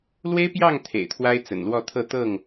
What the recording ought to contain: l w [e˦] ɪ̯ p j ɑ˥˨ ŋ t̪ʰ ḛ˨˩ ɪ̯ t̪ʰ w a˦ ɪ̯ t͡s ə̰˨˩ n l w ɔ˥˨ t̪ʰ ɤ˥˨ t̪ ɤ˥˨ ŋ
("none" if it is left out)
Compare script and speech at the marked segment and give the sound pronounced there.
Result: e˦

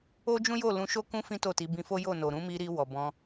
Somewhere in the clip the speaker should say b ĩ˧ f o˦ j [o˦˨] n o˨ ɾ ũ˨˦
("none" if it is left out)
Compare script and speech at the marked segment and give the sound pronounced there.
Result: o˦˨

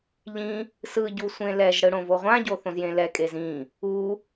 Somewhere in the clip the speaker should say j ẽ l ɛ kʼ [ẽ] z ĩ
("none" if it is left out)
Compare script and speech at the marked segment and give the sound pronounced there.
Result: e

